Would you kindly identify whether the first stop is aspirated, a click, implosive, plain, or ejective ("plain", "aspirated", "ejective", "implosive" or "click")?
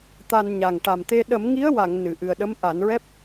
plain